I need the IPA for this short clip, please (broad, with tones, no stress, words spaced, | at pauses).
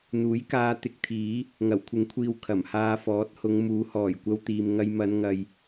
n̪uː˨˥jkaː˧ t̪ɪ˧k̚t̪ʰiː˨˥ | ŋɐ˨˩wkʷʰɪ˨˥ŋkʷʰiː˨w kʰɐ˨˩mhaː˧fɔː˨˥t̚hʊ˨˧ŋ muː˨˥hɔː˨˩j kʷɐ˧wt̪iː˨m ŋɐ˧jmɐ˨˧n ŋɐ˧j